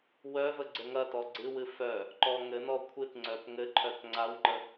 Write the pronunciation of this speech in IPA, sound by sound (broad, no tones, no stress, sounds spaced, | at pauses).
w œ v ə ɡ͡ǀ ɘ ŋ ɐ t ɔ ɡ͡ǀ ɨ w ɨ f œ | ǃ ɔ ŋ ɘ n ɔ kʷʰ ɨ t ŋ͡ǀ œ p ŋ ɘ ǃʰ œ t ŋ͡ǀ a w ŋ͡ǃ ə